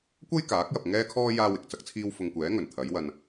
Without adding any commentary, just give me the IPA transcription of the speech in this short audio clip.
kʷɐ˥j kaː˨˥k̚jɐ˨p̚ŋɛː˥kʰɔː˥ jaː˥wɪ˨k̚t͡sɐ˥k̚t͡sʰiː˥w fʊ˧ŋkʷɛː˨˥ ŋɵ˨˩nt̪ʰɐ˨˥jwɐ˧n

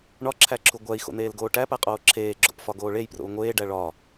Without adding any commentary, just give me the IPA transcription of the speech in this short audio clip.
ɳɒǁʰæǁʰu ɡʷæi̯xo̰n̪eːlɡoː ʈæpæqʼoː ǁʰeːɡ͡ǁo̰pfɒɡoː ɭejpro̰u̯ ŋʷeːɖæ ɭɒ

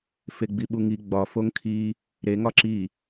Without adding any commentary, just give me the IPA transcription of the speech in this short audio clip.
feɡ͡biɓuŋi ɡ͡bɒ foŋkʰi | ɾeŋɒ ǁi

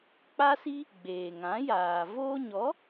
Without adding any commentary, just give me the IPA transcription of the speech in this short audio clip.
k͡pa˦si˦ | ɡ͡beː˨ŋã˨˦jaː˨ voː˧ɲɔ˨˦

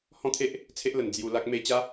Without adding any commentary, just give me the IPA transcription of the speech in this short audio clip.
hɔ̃˦t̪ʰe˦ʔ | t͡sʰe˦ʔlə˨˩n d͡zju˧ la˦k̚ me˧ t͡ɕa˦

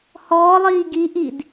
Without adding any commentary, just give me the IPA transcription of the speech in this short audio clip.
hɔːlˠiː ɡiʔid

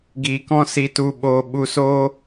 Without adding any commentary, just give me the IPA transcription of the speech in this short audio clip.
ɡiː˨kɔ̃˦si˧tu˧ ɓoː˧ ɓu˧soː˦

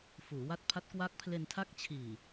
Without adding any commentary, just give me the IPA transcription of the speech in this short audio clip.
fuː˩˦wa˦˥t̚pʰa˦˥t̚ kwa˦˥k̚pʰle˧n tʰa˦˥k̚t͡ɕʰiː˨˩

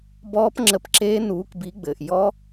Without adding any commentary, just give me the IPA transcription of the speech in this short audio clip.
bɔː˦˥pŋ͡ǁə˨˥pǁeː˦˥ nuː˨˥kbi˨˥ɡ͡bɘː˩ʔ jɔ˦˥

